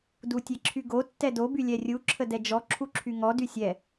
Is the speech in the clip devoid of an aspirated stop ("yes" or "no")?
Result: no